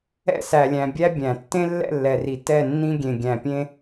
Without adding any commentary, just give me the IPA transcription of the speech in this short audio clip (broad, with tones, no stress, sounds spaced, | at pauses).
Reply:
ɛ̰˦ s æ˨ lʲ æ̃˨ bʲ æ˦ bʲ æ̃˨ tː ẽ˦ lː ɛ̰˦˨ lː ɛ˨ r i˨ t ɛ˦˨ nː ĩ˦ ɡʲ ẽ˨ ɡʲ æ̃˨ pʲ ẽ˦